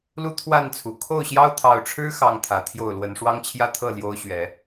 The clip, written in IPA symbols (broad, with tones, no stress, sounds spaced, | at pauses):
l u˦ t̪ʰ w a˥˨ n t͡sʰ u˨˩ kʰ o˥˨ ʊ̯ ɕ j ɑ˦ ʊ̯ t̪ʰ ɑ˨˩ ʊ̯ ʈ͡ʂʰ ɻ̩˦ x ɑ˨˩ ŋ t̪ʰ ä˨˦ t̪ʰ j o˥˨ ʊ̯ l w ə˨˦ n ʂ w ɑ˦ ŋ t͡ɕʰ j ä˦ t̪ʰ ɤ˥˨ l j o˦ ʊ̯ ɕ ɥ ɛ˨˦